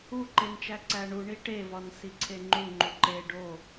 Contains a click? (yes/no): yes